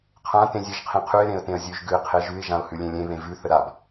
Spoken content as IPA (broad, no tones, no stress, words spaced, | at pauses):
qʰã tẽzʲeʒqʰẽqʰʉɪ̯ ɾẽə̯tẽə̯zʲʉʒ ɡʉɪ̯qʰeʒʉɪ̯ ʒãʊ̯hʉlʲẽlʲẽ βẽvʉ θəɾab